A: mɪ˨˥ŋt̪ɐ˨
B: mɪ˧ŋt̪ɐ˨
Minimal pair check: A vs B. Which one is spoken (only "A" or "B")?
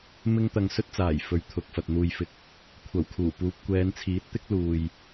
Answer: B